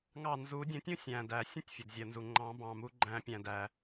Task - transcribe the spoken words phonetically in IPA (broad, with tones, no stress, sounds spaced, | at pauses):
ŋ ɑ˧˩ n z u˨˩˦ dʲ ə̃˨˩˦ tʲ ũ˥ sʲ æ̃˩ d æ˩ sʲ ə̃˥ tʲ fʲ ə˩ d zʲ ɜ˩ n z u˩ ŋ͡ǃ ɑ̃˨˩˦ b ɑ̃˩ m u˨˩˦ ɡ͡ǃ æ̃˨˩˦ pʲ æ̃˩ d æ˩